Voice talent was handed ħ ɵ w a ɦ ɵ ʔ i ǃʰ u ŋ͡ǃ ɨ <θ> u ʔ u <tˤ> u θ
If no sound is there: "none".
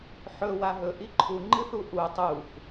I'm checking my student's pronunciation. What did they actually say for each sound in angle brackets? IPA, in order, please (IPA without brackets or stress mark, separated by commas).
θ, tˤ